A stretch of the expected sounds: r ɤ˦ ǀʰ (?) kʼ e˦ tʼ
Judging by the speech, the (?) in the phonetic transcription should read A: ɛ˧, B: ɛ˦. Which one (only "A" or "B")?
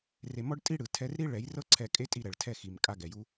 A